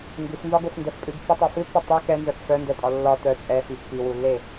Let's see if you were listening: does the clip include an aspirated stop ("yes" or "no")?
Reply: no